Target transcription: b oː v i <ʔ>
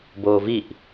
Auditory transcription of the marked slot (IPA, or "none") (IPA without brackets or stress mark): ʔ